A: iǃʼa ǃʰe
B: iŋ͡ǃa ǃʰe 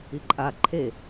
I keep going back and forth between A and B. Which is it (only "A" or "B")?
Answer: A